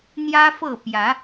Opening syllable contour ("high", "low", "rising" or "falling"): high